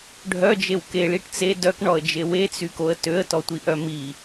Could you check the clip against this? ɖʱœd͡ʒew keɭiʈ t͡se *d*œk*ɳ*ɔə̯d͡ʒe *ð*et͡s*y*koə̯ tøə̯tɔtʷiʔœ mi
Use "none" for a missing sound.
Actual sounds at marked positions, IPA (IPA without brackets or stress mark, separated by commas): d, ɳ, w, y